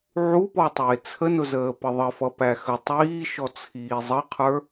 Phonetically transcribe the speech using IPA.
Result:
ʕupɔtˤɪː t͡sʰənʊzəː pəðˤəfʌ pæxə tˤiː ʃɔt͡sʰiːzˤəqʰə˞

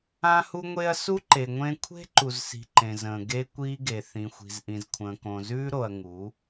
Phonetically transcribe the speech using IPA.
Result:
ã˦hu˦ŋʷe˦ɐ̯ su˦ǃe˨ ŋʷẽ˦ kʷʰe̤˦ǃu˨z si̤˧ǃẽ˨zə̃ː˨ ɡe˦kʷiː˦ɡe˨ θĩ˨xʷi̤˨zʔĩ˨z kʷʰə̃ː˨kõ˨zʉː˦ ɾo˧ɐ̯ ŋu˨˦

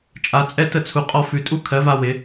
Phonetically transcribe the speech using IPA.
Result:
t͡ʃʼa˧˥t͡sʼɛ˥tə˥t͡sʰu˧ qʼɔ˧ fʉ˧ tʼu˥ kʰɜ˧˥va˥ wɪ˧˥

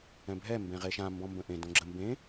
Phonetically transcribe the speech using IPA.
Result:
ɛ̃bʱɛ mbẽʁeʃã mbɔ̃mbə̃ʔẽ dõɡ͡ǁə mbẽ

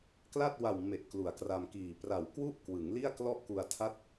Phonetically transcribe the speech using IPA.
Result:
kla˥˩t̚wa˨˩w me˨˩ʔ klu˩˦a̯kra˧mkiː˨˩ pra˨˩wkwu˥˩ʔkwɯ˩˦ŋ li˥˩a̯klɔ˥˩ʔku˧a̯ tʰa˥˩t̚

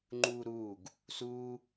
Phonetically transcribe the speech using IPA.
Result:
ŋ͡ǃuːɾuːɡ | suː

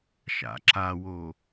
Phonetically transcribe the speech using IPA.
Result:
ʃa̰ǁawo

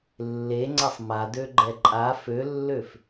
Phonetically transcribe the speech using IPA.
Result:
lːeŋ͡ǀasˤ madøɡ͡ǃɛ ǃʼa følːøf

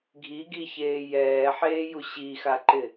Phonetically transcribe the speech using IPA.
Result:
ɡʱiɡiçeː jɛːħeːju ɕixaǃɪ

